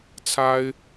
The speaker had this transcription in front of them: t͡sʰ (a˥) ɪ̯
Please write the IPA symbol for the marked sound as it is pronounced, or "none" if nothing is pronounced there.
a˥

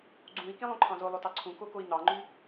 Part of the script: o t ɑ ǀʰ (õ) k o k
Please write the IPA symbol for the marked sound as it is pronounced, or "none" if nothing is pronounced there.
ũ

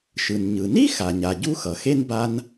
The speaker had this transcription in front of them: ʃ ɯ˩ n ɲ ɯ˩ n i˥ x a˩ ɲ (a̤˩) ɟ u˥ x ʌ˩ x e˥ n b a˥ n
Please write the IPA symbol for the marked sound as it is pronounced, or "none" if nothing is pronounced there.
a˩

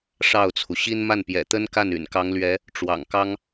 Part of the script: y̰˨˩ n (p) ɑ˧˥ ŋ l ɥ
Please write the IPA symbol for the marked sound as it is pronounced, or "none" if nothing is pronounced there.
k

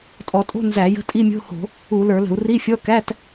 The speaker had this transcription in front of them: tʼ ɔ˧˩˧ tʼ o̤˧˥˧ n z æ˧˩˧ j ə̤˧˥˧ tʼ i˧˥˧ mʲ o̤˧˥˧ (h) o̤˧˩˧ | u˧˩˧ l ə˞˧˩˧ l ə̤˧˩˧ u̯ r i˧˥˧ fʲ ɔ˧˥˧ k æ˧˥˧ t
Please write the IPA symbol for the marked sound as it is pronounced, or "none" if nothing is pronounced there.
h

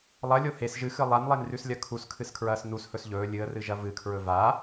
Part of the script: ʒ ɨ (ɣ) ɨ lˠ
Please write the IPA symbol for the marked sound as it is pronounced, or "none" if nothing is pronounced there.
x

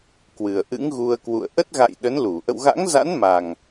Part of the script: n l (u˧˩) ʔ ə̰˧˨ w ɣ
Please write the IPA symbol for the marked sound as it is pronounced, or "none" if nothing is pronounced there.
u˧˩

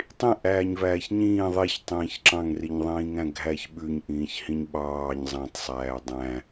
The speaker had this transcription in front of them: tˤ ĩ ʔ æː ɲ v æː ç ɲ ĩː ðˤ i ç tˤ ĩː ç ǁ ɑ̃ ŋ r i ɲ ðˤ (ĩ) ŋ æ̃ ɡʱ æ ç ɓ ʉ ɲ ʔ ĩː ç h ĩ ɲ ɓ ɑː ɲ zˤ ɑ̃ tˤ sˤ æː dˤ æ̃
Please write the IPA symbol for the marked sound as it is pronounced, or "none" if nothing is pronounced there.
ĩː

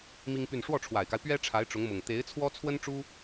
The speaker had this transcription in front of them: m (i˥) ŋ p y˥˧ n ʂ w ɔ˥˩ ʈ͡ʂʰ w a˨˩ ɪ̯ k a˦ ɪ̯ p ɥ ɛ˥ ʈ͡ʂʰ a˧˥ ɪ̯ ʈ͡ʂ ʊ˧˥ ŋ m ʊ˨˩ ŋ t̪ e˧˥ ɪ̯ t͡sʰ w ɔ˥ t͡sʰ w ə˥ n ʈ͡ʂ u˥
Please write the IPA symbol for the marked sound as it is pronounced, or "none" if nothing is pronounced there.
i˥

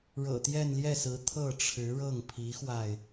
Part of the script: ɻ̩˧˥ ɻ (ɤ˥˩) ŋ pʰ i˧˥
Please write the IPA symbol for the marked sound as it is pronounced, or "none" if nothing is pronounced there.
ɤ˥˩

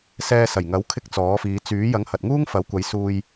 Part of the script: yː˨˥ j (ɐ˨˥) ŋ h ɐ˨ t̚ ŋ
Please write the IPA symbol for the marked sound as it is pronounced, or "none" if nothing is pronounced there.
ɐ˨˥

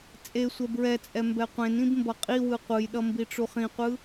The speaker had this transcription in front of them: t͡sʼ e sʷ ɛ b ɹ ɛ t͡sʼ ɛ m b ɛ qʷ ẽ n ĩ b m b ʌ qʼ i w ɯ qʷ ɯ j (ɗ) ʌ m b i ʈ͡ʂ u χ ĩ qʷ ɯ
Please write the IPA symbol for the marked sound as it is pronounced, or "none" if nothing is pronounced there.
ɗ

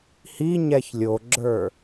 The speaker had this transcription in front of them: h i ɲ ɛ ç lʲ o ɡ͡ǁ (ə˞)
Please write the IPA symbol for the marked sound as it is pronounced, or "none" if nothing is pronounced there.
ə˞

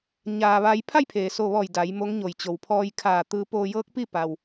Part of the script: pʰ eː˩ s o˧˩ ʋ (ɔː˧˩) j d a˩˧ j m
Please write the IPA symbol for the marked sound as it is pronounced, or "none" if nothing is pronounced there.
ɔː˧˩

